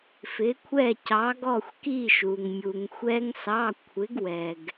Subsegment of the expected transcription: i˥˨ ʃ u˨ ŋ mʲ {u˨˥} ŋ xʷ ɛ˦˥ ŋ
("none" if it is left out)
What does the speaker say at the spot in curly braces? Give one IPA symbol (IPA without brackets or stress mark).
u˨